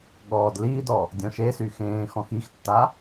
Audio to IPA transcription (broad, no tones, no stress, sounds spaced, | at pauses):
ɠ ɔː d l iː d ɔ | dʲ ɔ̃ ʃ e s y x ẽː x ɔ̃ x i x tː a